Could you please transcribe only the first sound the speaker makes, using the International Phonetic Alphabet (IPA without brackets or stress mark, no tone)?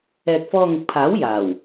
ɛː